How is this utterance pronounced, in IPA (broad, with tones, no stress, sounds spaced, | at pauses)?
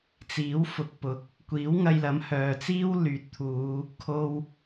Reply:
t͡s iː˨˥ w f ʊ˨ k̚ p ʊ˨˥ k̚ | kʷ iː˨˥ w ŋ ɐ˧ j l ɐ˨˥ m h œː˨ t͡s iː˥ w l yː˨ t̚ t̪ʰ uː˨˧ | kʰ o˧ w